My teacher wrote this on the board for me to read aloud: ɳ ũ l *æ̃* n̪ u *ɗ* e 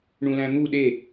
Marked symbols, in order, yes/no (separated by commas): yes, yes